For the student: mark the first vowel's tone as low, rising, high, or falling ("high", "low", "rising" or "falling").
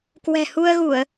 low